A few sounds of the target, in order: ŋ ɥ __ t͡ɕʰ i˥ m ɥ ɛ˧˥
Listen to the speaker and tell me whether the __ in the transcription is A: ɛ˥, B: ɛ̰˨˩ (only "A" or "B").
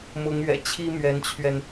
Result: B